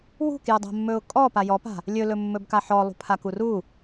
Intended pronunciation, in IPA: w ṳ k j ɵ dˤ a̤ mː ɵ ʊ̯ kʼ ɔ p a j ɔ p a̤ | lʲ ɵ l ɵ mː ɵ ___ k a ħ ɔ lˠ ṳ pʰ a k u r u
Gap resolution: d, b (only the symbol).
b